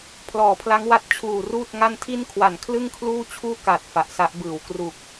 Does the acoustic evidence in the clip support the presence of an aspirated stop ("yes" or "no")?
yes